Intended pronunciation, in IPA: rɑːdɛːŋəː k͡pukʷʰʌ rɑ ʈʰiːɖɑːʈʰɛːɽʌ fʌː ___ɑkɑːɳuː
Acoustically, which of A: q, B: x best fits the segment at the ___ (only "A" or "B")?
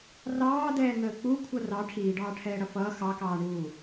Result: B